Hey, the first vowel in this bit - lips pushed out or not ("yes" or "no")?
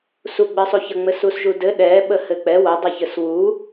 yes